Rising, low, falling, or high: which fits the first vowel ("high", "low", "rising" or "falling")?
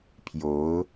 rising